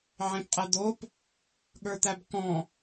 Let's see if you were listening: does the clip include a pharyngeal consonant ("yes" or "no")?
yes